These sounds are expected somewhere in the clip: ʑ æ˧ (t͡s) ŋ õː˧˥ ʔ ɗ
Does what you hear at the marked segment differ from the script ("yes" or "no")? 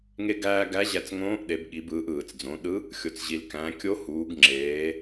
no